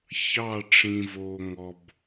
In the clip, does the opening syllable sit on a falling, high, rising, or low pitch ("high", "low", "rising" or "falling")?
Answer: falling